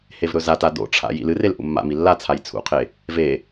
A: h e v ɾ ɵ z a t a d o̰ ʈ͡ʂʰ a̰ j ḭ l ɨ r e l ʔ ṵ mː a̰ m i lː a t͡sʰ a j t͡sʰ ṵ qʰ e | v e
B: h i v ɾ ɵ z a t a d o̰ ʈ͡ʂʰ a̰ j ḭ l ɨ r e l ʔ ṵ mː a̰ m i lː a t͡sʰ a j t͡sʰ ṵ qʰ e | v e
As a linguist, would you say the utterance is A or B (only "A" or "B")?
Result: A